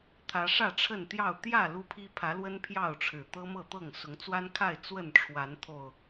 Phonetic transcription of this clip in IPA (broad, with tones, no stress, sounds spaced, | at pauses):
t̪ʰ ä˨˦ ʂ ä˥˨ ʈ͡ʂʰ ə˥˨ n t̪ j ɑ˥˨ ʊ̯ t̪ j ä˥˨ l u˦ pʰ i˦ pʰ ä˨˦ l w ə˦ n pʰ j ɑ˥˨ ʊ̯ ʈ͡ʂʰ ɻ̩˨˩ t̪ ɤ˦ m ɤ˥˨ t̪ ɤ˥˨ ŋ s ʊ˨˦ ŋ t͡s w a˦ n kʰ a˥˨ ɪ̯ t͡s w ə˥˨ n ʈ͡ʂʰ w a˨˦ n t̪ʰ o˨˩ ʊ̯